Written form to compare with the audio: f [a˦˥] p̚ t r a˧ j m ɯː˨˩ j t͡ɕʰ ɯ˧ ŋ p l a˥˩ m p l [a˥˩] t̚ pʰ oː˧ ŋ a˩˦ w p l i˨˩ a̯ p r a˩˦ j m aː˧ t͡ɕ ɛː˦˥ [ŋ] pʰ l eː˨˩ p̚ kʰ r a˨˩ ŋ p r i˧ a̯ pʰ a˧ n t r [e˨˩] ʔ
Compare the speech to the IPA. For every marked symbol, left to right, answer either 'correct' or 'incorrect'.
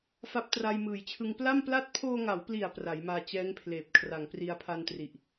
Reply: correct, correct, correct, incorrect

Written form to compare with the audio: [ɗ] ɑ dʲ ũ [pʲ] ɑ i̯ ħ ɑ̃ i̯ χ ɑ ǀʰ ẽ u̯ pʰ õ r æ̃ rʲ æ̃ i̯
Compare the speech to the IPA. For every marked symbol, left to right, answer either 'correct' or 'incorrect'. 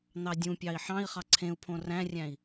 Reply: incorrect, correct

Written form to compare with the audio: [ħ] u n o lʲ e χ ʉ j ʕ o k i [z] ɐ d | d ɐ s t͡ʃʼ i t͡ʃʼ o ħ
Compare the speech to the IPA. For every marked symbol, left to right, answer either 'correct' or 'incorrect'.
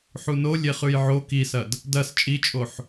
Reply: correct, incorrect

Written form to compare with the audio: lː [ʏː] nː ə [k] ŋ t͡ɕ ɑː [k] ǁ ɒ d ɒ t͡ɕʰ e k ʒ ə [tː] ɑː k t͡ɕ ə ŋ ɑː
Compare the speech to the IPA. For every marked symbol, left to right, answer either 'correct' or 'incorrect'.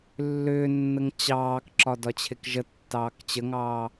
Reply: correct, incorrect, correct, correct

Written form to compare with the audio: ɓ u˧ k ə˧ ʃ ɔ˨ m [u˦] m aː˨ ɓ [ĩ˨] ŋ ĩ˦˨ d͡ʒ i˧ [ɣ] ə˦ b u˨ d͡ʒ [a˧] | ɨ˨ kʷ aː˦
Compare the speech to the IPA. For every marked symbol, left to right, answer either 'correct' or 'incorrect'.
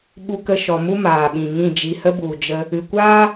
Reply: correct, correct, incorrect, incorrect

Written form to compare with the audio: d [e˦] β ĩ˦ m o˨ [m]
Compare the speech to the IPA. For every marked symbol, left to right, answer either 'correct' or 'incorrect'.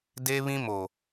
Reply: correct, incorrect

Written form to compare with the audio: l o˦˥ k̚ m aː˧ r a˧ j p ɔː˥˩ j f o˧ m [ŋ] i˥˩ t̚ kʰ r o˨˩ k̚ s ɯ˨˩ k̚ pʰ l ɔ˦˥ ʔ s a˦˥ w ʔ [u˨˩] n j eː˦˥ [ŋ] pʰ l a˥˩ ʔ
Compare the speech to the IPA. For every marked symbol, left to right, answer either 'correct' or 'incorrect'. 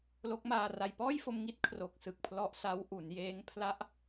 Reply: correct, incorrect, correct

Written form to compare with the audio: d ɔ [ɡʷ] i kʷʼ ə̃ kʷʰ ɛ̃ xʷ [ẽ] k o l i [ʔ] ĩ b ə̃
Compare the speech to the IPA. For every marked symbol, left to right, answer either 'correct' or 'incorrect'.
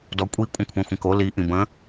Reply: incorrect, incorrect, correct

